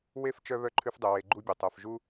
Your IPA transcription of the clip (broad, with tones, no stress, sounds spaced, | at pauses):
w e˥ f t͡ʃ œ˦ β œ˥ ǃʰ ʉ˦ f dˤ œ˨ w e˨ ɡ͡ǃ u˦ bʲ o˩ tˤ œ˨ f ʒ u˦